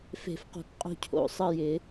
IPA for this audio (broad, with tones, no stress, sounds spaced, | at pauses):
f e̤˨˩˦ f q o̤˨ k qʼ o̤˦˨ cʰ o̰˨˩˦ sˤ ə˦˨ j ɪ˨˩˦